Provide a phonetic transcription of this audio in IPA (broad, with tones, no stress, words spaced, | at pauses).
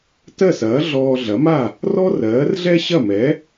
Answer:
tɜ˥˩sɐː˩˥ ɮɔː˧ɮɐ˩˥ma˥˩ | rɔ˥rɜː˩˥rɮɛ˥ ɕɐ˥˩mɛ˩˥